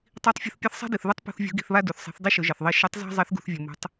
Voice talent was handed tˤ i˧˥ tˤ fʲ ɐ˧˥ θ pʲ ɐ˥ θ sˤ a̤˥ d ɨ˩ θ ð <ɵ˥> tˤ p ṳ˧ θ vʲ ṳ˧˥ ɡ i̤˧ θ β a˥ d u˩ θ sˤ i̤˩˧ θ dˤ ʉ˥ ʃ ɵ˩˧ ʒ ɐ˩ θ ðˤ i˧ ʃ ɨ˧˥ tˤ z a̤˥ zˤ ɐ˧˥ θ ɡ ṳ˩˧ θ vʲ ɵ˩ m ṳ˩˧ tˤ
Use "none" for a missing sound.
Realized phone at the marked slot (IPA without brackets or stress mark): ɵ˥